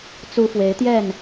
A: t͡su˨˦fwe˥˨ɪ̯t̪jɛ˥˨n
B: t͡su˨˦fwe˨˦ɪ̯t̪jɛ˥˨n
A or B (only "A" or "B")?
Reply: B